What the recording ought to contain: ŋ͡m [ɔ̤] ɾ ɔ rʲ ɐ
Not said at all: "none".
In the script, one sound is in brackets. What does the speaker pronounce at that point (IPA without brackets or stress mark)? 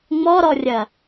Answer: ɔ